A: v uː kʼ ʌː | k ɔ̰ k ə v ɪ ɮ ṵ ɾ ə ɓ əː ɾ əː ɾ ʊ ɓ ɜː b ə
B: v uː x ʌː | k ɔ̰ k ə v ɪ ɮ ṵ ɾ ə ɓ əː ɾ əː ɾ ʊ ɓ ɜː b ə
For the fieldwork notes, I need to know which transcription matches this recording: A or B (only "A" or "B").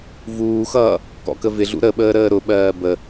B